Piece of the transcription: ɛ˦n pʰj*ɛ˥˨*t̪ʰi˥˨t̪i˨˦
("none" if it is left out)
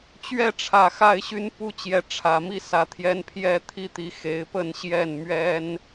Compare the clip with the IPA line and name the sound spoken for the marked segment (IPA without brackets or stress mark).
ɛ˥˨